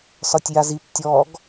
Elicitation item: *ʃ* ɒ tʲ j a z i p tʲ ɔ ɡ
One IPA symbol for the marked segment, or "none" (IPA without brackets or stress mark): s